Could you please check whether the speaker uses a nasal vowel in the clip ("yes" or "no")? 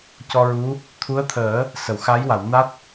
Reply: no